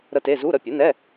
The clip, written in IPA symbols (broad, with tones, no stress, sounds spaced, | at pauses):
ɾ ə˦˥ t e˧˥˧ z u˧˥˧ ɾ ə˦˨ pʲ u˩˥ n ɛ˧˥˧